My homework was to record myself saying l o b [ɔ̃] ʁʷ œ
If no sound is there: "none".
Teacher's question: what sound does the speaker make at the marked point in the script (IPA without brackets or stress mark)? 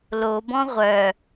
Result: ɔ̃